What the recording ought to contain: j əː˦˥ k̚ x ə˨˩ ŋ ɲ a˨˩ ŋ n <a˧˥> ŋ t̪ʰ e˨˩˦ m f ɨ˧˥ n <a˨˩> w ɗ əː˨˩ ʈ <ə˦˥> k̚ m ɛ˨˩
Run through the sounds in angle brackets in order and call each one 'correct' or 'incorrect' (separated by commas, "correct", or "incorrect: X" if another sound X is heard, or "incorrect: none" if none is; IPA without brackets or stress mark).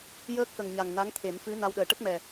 correct, incorrect: a˧, correct